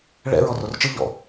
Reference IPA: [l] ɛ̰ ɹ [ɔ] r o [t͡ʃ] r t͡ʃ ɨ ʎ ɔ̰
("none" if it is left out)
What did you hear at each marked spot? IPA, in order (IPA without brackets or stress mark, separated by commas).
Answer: ɭ, ɔ, none